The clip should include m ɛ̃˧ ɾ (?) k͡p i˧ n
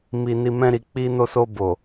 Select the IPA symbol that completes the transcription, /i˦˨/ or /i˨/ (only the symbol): i˨